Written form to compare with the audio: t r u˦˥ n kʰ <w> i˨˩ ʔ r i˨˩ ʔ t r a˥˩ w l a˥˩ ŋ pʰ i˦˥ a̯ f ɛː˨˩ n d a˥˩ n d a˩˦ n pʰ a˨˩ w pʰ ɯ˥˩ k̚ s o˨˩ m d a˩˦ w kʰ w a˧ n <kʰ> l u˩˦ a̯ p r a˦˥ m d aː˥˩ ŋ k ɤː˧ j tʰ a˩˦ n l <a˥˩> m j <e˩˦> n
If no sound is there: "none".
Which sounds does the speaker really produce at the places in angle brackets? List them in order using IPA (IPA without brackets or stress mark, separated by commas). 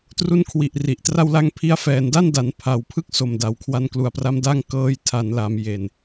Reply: w, k, a˩˦, e˨˩